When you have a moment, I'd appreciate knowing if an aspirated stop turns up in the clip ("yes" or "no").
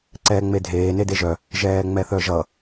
no